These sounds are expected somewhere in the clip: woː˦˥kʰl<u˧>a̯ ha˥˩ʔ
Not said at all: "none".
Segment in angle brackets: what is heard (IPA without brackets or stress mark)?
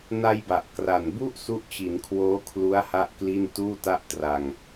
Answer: u˦˥